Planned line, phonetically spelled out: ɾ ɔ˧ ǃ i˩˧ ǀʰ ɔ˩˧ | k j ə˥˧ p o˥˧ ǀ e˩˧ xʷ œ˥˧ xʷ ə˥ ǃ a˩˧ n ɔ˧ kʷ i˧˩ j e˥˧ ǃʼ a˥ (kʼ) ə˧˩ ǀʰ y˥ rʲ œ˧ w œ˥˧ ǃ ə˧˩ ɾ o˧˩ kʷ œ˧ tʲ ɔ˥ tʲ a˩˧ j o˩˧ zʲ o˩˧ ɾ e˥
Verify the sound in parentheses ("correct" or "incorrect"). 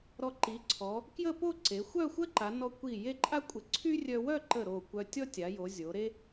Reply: incorrect